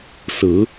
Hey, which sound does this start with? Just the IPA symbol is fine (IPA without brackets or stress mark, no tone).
s